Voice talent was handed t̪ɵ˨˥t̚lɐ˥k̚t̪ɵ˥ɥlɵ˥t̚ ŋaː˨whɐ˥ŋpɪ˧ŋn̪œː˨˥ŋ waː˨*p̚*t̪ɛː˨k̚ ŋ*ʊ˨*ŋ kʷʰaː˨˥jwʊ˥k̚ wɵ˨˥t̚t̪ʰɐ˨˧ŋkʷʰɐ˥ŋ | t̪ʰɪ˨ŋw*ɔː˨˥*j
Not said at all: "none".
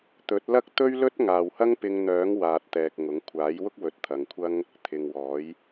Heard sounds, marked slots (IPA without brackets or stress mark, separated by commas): t̚, ʊ˨˥, ɔː˨˥